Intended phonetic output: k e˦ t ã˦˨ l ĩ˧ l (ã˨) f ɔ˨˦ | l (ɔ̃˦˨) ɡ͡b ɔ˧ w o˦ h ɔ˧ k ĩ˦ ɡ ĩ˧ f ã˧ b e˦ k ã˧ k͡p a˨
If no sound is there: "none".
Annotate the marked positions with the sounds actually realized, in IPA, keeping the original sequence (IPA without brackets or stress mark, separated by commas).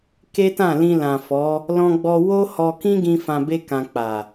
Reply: ã˨, ɔ̃˧